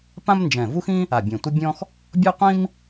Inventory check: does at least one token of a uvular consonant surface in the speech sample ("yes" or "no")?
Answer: yes